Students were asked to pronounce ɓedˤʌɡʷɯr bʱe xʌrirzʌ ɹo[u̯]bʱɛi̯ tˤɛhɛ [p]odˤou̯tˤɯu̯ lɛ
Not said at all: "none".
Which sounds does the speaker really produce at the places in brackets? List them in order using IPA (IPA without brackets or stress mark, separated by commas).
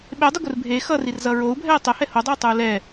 u̯, h